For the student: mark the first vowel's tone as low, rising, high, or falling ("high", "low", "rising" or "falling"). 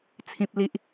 low